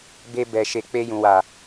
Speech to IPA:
b e˧ b ɛ˨ ʃ e˨ k͡p e˧ j ũ˨ w a˨

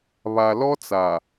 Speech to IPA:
β a˨ l ɔ˦ t͡s a˨

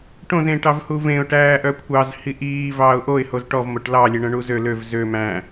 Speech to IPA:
ʈ õ z ẽ ʈ ɑ v h u v ẽ ʊ̯ ʈ æː ʔ œ kʷʰ ɑ z h i ʔ iː v ɑː ʊ̯ ʔ o ɪ̯ h o z ʈ ɔ v m o ʈ l ɑ lʲ e ɳ œ̃ ɳ u z ø l ø v z ø m æ̃

